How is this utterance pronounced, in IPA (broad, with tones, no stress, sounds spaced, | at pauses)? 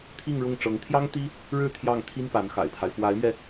t̪ʰ i˥˧ ŋ ɻ ʊ˥˩ ŋ ʈ͡ʂ ɤ˧˥ ŋ t̪ʰ j ɑ˥ ŋ t̪ i˥ | ɻ ɻ̩˥˧ t̪ʰ j ɑ˥˩ ŋ t̪ʰ i˥ n p a˧˥ n x a̰˨˩ ɪ̯ pʰ a˦ ɪ̯ f w a˧˥ ɪ̯ m ɥ ɛ˧